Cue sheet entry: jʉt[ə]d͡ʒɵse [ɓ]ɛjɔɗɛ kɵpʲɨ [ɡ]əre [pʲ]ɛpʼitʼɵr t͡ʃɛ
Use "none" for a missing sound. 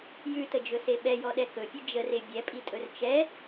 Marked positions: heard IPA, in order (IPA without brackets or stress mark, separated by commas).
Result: ə, ɓ, d͡ʒ, bʲ